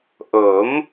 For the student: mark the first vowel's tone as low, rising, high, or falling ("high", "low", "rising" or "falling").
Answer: rising